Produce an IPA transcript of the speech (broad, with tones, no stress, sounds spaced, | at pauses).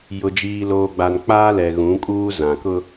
j ʊ˨ d͡ʒ iː˨ l oː˨ ɡ͡b a˨ n k͡p aː˦ l ɛ˨ ɣ ũ˨˦ kʼ uː˦ z ã˨ k ʊ˦